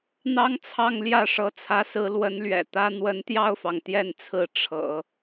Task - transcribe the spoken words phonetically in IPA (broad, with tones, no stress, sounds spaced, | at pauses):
n̪ ɑ˥ ŋ t͡sʰ ɑ˥˧ ŋ l j ä˥˩ ʂ ɤ˧˥ t͡sʰ ä˧˥ s ɹ̩˧˥ l w ə˧˥ n l ɥ ɛ̰˨˩ t̪ ä˥ n̪ w ə˧˥ n t̪ j ɑ˥˩ ʊ̯ f ɑ˩ ŋ t̪ j ɛ˥˩ n t͡sʰ ɹ̩˧˥ ʈ͡ʂʰ ɤ̰˨˩˦